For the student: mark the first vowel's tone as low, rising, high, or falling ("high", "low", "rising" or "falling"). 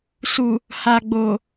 low